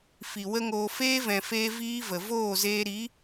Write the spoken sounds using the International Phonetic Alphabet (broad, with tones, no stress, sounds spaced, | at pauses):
f i˨ w ə˦ ŋ oː˧ f eː˦ v ɛ̃˨ f eː˧ v iː˦ v ə˨ v oː˦˨ z eː˧ ɾ i˨˦